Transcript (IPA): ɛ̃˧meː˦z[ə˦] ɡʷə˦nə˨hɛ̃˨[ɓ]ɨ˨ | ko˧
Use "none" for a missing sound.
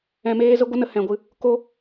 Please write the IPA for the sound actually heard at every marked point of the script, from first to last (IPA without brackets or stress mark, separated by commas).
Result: ə˦, ɡʷ